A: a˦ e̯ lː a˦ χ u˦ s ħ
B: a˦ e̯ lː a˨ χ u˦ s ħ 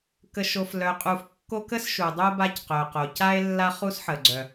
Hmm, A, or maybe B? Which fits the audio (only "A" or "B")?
A